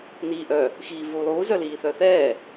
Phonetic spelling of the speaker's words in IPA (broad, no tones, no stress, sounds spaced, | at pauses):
n iː ʔ œ | x iː v uː lˠ uː z œ l iː θ œ θ ɛː